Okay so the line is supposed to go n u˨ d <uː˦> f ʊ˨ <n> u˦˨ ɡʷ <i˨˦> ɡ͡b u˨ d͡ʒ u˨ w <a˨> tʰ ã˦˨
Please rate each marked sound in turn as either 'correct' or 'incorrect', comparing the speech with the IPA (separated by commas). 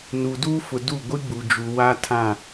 correct, incorrect, incorrect, incorrect